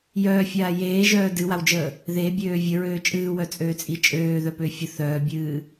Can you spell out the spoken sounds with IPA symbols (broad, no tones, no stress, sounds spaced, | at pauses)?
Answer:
j œː fʲ aː j eː ʒ œː d ɨ w a w d͡ʒ əː | ð e bʲ øː vʲ ə ɹ øː t͡ʃʼ ɨː w œ t͡sʼ øː t͡sʼ i t͡ʃʼ øː ð œ p ø fʲ ə θ œː bʲ ɨː